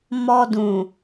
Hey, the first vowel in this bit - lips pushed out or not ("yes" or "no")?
yes